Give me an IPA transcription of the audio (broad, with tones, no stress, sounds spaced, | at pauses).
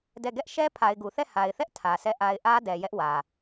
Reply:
d ɛ˦˨ ɡ ɛ˦ ʔ ʃ ɛ˦ pʰ a˨ ɪ̯ ɡ u˨ θ ɛ˦˨ h a˨ ɪ̯ θ ɛ˦ ʔ tʰ ä˨ sʰ ɛ˦˨ ʔ a˦ ɪ̯ ʔ ä˦ d ɛ˨ j ɛ˦ ʔ w ä˨